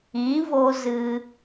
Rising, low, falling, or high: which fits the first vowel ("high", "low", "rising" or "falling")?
rising